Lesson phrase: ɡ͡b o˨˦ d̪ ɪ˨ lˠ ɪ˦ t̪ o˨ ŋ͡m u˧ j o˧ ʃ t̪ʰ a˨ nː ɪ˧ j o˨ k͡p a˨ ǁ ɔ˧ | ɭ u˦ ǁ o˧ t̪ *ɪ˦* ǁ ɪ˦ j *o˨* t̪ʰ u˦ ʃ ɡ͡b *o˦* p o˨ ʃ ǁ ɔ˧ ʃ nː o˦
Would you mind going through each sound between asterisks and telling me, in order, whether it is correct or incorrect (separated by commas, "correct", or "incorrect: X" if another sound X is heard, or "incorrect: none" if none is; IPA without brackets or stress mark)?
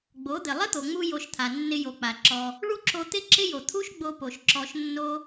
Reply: correct, correct, incorrect: o˧